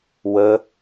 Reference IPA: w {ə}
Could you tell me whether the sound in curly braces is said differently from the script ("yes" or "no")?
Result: no